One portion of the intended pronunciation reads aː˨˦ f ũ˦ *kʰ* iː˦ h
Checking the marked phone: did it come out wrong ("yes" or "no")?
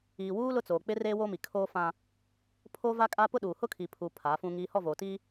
yes